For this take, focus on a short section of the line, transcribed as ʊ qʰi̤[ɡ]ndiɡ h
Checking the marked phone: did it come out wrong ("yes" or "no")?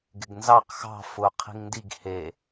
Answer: yes